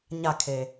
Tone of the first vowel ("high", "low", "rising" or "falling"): falling